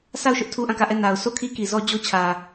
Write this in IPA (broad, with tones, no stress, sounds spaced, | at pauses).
sʰ a˦˨ ʊ̯ ʃ ʊ˦ ʔ tʰ u˦ ʔ ã˦˨ k ä˦˨ ʔ ɛ˦˨ n a˨ ʊ̯ sʰ o˦˨ kʰ i˦ k i˨ z ɔ˦ d͡ʑ o˦ t͡ɕʰ ä˨